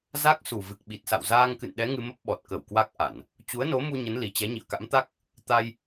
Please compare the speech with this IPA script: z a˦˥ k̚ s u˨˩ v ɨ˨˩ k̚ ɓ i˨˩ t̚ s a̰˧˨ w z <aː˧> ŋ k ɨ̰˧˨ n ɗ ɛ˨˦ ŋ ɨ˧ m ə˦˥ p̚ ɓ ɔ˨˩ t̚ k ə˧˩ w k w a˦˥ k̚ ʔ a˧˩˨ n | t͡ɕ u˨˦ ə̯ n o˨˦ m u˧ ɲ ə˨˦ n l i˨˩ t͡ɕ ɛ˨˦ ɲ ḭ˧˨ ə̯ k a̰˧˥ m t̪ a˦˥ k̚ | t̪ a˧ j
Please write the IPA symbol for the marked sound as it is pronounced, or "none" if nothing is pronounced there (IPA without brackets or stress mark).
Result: aː˧